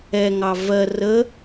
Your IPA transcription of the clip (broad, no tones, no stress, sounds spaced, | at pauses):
ɛ ŋ ɑ v ɜ r ə